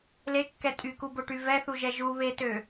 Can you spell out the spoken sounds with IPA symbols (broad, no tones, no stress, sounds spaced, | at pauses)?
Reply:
l e kː ɛ tʼ y k u b o ʈ y v ɛ θ u ʒ ɛ ʒ u β e t ø